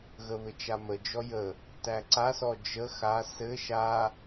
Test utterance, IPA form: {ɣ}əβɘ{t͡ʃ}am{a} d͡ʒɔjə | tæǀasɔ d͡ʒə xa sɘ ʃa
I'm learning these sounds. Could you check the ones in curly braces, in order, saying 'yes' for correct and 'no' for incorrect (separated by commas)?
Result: yes, yes, no